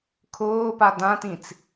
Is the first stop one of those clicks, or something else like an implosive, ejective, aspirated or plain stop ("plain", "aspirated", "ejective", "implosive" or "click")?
aspirated